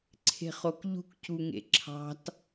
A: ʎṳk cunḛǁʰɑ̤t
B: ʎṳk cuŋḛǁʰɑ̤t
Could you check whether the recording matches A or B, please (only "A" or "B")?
B